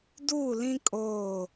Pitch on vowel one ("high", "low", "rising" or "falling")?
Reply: falling